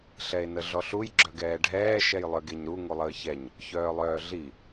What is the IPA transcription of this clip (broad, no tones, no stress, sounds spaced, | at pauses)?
ɬ ɛ e̯ n ə ɮ ɔ ɬ u j ɡ͡ǁ œ ɡ ɛː ɖʱ ɛː ʃ ɛ j lˠ œ ɡ e ɲ ɾ u ŋ u lˠ əː ç ɛ ɲ | ç œː lˠ œː ɮ i